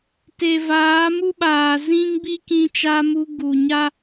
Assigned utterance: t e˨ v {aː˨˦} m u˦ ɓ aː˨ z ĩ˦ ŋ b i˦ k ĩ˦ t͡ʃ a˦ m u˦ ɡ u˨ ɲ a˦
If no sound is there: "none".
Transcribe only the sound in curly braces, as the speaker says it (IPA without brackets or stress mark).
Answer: aː˨˦